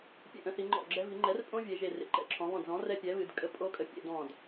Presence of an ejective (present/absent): present